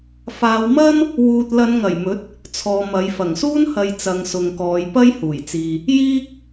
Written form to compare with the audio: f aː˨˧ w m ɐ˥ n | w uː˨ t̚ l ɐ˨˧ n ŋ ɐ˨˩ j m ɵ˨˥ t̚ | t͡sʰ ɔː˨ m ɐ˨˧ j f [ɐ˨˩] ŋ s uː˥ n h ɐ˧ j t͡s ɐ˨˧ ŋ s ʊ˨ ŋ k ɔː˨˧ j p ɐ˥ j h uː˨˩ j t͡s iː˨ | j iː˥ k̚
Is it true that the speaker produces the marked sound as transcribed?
yes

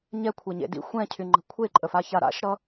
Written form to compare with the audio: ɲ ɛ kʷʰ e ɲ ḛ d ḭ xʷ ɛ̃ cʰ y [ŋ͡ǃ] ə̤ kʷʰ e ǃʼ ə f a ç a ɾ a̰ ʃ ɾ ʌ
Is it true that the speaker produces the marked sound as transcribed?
yes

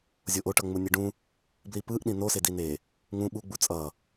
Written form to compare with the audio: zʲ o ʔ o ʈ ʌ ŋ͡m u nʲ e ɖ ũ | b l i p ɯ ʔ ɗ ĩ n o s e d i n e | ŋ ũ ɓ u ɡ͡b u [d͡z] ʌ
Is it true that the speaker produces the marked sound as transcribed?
no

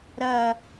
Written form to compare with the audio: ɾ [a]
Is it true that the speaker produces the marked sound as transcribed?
no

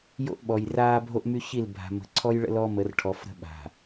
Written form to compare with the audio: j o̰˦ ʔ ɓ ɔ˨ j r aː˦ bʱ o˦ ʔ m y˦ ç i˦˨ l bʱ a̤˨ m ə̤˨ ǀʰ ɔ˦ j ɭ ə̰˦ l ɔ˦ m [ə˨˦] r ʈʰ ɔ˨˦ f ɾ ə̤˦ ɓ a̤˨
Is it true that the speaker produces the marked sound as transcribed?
yes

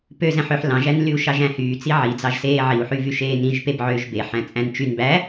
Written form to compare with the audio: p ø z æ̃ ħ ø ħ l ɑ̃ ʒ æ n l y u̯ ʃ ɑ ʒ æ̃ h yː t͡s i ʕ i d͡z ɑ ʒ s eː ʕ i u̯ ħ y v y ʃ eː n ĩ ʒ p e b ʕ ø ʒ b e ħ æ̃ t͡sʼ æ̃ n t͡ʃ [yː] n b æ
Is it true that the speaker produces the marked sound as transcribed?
no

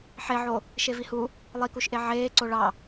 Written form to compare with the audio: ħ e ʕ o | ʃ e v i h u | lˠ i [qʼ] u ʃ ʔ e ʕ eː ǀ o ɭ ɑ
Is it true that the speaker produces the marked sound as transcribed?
no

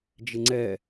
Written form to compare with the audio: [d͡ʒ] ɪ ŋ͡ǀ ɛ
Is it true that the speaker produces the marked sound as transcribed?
yes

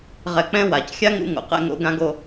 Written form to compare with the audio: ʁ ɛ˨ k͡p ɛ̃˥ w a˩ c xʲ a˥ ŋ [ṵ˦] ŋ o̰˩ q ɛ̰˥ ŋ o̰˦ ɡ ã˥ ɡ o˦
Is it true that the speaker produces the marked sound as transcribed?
yes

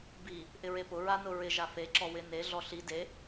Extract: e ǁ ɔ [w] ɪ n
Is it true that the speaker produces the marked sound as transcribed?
yes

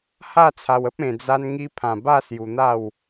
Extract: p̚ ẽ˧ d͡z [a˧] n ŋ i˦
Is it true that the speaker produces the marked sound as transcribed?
no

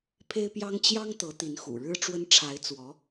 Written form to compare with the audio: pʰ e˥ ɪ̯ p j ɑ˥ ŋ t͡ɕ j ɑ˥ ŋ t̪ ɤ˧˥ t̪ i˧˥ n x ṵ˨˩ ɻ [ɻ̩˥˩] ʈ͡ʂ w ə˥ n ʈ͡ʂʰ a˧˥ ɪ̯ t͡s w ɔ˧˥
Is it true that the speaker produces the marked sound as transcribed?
no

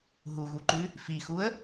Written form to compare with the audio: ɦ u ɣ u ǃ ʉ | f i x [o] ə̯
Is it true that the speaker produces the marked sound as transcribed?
no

